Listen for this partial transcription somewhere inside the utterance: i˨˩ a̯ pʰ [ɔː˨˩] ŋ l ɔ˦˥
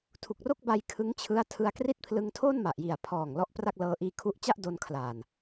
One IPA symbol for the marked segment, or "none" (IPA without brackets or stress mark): ɔː˨˩